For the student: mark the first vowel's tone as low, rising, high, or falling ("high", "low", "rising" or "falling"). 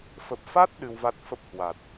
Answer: low